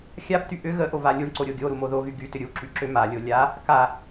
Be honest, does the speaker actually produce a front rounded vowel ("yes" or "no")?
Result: yes